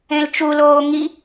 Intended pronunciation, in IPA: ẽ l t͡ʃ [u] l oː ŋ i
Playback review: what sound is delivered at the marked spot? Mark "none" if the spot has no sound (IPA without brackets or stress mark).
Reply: u